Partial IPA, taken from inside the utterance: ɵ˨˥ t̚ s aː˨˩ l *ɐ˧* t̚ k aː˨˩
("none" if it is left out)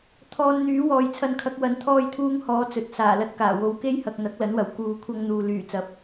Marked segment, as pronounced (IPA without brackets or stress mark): ɐ˧